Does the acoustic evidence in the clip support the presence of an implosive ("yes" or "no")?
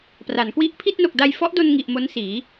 no